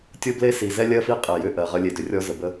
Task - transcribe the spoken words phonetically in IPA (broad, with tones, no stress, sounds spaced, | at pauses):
tʲ o˦ b l e˦ s i˨ z ɛ˦ lʲ ɜ˦ f i˦ qʼ e˨ j ʏ˦˨ ʔ ɜ˨ ʁ ə˦ lʲ e˨ d ʏ˨ rʲ ɔ˦ z ə˨ b ə˦